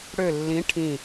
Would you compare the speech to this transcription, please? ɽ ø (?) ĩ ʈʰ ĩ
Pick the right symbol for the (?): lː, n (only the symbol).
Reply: lː